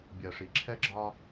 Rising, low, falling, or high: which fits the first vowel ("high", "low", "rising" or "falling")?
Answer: low